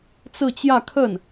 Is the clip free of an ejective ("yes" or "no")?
yes